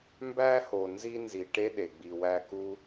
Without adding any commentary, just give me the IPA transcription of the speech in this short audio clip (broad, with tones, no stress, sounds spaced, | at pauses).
m b æ˦ h o˨ n z i˥ n z i˨ ʈ e˥ ɗ e˩ ɡ͡b i˨ w æ˦ k u˥